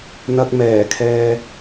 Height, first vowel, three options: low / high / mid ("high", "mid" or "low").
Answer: low